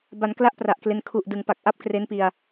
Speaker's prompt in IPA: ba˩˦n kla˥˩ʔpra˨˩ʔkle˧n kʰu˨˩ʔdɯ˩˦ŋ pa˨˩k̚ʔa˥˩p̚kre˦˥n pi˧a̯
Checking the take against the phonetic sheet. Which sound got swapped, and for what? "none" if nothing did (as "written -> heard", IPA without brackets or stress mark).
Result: none